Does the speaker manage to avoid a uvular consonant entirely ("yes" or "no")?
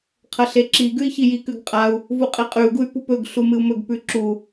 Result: no